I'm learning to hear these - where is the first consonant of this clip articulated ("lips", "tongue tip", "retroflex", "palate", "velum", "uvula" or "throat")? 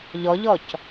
palate